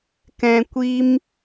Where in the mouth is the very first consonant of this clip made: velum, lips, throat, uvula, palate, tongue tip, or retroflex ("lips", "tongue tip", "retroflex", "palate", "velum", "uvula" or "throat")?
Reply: velum